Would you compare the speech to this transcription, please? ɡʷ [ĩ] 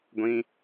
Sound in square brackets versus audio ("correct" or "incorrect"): correct